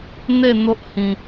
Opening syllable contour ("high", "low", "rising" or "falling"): falling